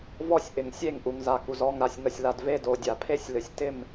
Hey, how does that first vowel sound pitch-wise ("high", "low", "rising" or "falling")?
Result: falling